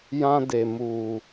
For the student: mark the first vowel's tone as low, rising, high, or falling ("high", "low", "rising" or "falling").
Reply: high